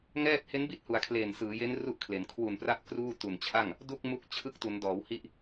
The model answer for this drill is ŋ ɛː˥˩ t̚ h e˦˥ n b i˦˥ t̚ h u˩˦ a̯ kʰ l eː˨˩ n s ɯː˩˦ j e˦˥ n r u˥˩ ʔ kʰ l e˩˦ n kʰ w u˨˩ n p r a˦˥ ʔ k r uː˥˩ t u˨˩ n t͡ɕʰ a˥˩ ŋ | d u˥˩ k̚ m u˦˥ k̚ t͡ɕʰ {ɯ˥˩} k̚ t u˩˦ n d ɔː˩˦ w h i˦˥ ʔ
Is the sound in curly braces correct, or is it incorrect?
incorrect